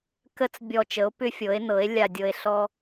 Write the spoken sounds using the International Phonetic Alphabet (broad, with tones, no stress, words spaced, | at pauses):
kə˧t͡s bʲɔ˨˩t͡ʃə˩˧o̯ pʏ˧fʲɤ˩˧e̯nɤ˩˧e̯ lʲa˨˩dʲɤ˨˩e̯ɬɔ˧